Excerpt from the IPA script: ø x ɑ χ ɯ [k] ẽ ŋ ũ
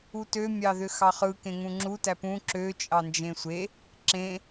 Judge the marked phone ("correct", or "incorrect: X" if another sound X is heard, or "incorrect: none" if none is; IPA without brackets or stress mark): correct